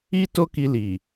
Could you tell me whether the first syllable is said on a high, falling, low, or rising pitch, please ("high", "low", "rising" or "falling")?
high